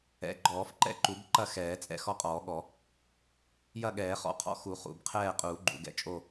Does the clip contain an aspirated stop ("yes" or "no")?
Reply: yes